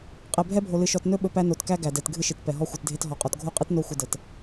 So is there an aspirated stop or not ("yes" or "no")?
no